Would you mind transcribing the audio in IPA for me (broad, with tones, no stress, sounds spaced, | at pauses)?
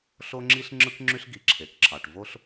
ɬ o˥ ŋ͡ǁ i˥ ɬ ŋ͡ǁ ɯ˥ k ŋ͡ǁ y˥ ɬ ɡ i˩ ǁʰ e˩ k ǁʰ ɑ˩ ʈ v o˥ ɬ